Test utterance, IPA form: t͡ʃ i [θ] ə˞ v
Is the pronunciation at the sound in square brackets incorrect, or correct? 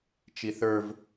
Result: correct